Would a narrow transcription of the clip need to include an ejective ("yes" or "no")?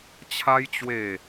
no